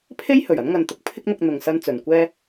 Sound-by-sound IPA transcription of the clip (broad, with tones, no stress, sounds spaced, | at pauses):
pʰ e˥ j h ɵ˨˩ ɥ ɐ˨˥ n ŋ ɐ˨ n t̪ ʊ˨˥ k̚ pʰ ɪ˥ k̚ n̪ ʊ˧ k̚ n̪ ʊ˨ ŋ s ɐ˧ n t͡s ɵ˨ n kʷ ɛː˥